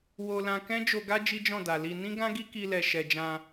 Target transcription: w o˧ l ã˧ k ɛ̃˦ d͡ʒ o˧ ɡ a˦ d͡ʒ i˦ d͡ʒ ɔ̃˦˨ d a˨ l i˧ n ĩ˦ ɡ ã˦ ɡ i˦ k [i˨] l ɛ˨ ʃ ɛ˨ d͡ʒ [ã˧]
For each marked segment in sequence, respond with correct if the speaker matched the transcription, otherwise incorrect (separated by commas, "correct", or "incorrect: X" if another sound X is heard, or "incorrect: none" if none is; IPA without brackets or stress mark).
incorrect: i˧, correct